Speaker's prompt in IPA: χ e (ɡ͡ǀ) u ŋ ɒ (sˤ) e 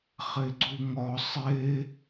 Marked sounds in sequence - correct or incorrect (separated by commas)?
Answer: correct, correct